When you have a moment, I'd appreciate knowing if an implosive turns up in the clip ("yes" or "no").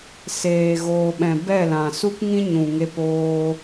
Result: yes